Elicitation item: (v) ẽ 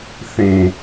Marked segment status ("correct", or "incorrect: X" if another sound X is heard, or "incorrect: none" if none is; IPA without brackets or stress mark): incorrect: θ